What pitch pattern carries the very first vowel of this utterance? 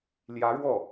rising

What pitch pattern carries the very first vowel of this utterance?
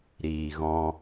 low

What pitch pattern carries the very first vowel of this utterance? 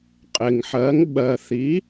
low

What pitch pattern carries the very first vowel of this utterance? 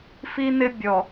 high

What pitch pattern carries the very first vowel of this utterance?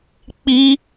high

